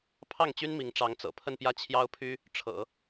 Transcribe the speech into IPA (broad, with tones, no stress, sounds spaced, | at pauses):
pʰ ɑ˥˩ ŋ t͡ɕ y˥ n m i˧˥ ŋ ʈ͡ʂ ɑ˧˥ ŋ t͡s ɤ̰˨˩ pʰ ə˥˧ n p j ä˥˩ t͡ɕʰ j ɑ˥ ʊ̯ pʰ y˥ | ʈ͡ʂʰ ɤ̰˨˩˦